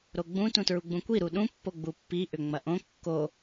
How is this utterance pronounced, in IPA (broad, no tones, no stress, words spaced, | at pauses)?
ɾoɡ͡bũ tũtɹuɡ͡bũkʷi ɾuɗũ pːoɡ͡bupːi ʔʏŋ͡mɐʔõ kːo